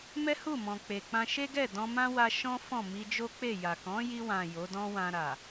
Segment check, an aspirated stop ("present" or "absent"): absent